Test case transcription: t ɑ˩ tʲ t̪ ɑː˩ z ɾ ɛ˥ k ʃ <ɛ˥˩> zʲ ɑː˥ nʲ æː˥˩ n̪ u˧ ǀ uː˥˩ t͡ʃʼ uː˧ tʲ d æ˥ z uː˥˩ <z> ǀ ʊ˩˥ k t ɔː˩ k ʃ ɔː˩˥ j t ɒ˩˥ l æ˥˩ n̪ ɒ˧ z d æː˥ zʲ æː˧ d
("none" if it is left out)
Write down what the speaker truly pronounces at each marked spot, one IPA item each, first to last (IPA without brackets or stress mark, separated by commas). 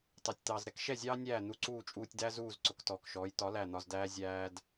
ɛ˥˩, z